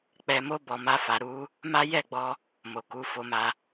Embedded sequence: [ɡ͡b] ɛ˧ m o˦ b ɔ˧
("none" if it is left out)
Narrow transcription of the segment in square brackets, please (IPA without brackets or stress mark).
k͡p